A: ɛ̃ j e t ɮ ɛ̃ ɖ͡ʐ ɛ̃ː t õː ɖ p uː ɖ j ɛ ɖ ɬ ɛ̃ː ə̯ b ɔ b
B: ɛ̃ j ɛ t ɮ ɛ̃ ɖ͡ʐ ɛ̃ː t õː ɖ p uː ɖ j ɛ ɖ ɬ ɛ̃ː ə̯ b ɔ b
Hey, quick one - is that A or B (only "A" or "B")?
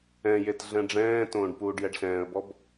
A